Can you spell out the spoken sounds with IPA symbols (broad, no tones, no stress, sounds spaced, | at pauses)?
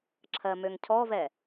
ǁʰ ɜ m ø ŋ cʰ ɔ v ɛ